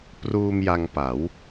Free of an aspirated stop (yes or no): yes